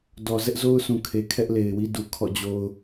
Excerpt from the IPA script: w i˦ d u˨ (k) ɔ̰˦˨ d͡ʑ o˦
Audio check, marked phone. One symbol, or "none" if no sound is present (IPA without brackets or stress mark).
kʰ